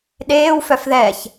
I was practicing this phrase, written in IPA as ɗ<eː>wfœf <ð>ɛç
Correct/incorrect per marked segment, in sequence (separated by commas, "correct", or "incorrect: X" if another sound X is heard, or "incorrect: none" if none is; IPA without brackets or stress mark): correct, correct